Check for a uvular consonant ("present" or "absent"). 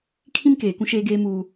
absent